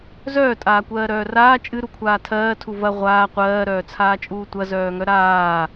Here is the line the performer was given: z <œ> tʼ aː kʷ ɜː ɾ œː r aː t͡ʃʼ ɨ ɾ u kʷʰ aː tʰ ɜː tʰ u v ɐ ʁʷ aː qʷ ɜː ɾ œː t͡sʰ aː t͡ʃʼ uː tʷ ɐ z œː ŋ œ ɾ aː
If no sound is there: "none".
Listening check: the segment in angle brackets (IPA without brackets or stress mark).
œː